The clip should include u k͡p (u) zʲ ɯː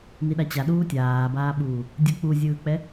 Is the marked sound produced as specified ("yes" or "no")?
yes